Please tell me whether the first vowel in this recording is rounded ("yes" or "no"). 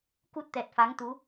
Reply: yes